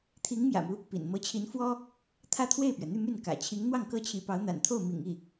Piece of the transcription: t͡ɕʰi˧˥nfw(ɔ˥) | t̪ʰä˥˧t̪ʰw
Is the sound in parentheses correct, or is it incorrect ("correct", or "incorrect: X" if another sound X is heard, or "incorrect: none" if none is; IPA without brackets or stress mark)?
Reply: correct